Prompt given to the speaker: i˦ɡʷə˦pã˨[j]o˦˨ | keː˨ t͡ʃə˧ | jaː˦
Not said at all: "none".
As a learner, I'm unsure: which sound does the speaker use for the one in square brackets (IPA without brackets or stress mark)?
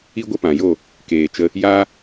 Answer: j